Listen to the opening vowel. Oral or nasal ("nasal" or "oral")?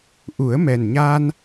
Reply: oral